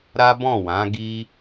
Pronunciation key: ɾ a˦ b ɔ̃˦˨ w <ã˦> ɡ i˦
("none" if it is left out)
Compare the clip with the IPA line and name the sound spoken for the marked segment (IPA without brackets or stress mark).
ã˨˦